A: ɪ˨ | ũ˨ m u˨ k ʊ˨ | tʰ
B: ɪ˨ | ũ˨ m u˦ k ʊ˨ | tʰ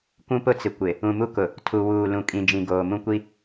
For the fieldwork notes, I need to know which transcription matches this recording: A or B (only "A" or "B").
B